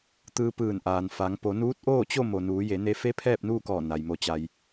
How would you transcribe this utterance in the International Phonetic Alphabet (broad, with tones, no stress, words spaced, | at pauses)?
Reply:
t̪ɯː˧ pɯː˧˩nʔaː˩n fa˩˧ŋ po˩˧nuː˧˥t̚ʔoː˥˨t͡ɕo˥˨ mo˩nuː˩˧je˩˧ ne˧fe˧˥ pʰɛː˥˨p̚nuː˥˨kɔː˧˩ na˩j mo˩t͡ɕa˩j